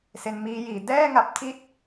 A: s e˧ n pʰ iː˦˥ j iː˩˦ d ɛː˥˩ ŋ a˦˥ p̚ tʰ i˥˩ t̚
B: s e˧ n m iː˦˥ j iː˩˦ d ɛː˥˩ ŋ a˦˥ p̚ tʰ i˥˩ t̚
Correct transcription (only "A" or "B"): B